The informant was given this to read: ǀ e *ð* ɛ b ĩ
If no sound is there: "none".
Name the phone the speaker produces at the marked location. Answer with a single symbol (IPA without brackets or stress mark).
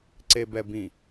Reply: b